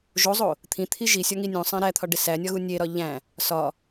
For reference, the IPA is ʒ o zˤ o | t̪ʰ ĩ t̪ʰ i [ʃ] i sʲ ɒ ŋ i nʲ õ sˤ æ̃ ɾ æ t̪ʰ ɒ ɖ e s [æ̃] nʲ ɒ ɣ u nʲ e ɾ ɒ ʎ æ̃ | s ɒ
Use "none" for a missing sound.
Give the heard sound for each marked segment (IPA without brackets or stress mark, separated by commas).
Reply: ʒ, æ